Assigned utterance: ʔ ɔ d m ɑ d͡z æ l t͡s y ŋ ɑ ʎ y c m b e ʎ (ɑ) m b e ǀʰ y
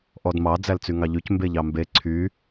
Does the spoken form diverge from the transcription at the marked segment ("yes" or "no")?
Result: no